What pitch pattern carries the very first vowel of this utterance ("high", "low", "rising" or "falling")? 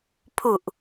low